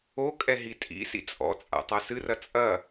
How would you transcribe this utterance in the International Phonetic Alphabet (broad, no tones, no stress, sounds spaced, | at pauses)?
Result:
o kʼ ɛ ɦ i tʼ ḭ s ḭ t͡sʼ ɔ̰ t͡sʼ a̰ tˤ a s ɨ r ɐ t͡sʼ ɐ